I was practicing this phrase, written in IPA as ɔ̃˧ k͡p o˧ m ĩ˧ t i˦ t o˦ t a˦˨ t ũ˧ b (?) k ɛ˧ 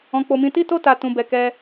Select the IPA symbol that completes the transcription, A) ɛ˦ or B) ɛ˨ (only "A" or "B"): B